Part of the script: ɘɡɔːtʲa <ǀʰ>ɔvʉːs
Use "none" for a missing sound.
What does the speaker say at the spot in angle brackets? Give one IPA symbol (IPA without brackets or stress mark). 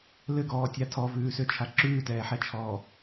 tʰ